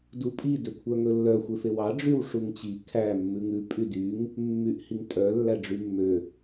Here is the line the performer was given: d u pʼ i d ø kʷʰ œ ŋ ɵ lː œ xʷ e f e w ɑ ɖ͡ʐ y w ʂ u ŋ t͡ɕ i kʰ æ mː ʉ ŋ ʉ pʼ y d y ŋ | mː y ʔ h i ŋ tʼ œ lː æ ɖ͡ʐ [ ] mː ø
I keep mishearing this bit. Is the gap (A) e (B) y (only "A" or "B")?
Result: B